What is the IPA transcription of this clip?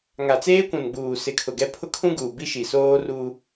ŋ a˨ t͡s eː˦ kʷ ũ˨ n ɡ͡b uː˨ s ɪ˨ kʰ ʊ˨ ɡ ɛ˦ pʰ ʊ˦ kʰ ũ˦ ɡ uː˨ b i˦ ʃ i˨ s oː˦ r u˦

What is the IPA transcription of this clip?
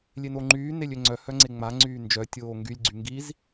lʲ e n o ŋ͡ǃ yː n e lʲ ø ŋ͡ǀ œ h œ ŋ͡ǀ e ŋ͡m a ŋ͡ǀ yː n d͡ʒ œ tʲ oː ŋ ɡ y lʲ ɡ͡ǀ y ŋ ɡ i z

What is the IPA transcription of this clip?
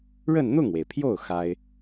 ɻ ə˥˧ n n̪ ʊ˥˩ ŋ w e˩ ɪ̯ pʰ j o˥˩ ʊ̯ x a˥ ɪ̯

